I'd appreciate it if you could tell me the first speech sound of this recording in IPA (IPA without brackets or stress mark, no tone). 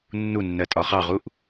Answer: nː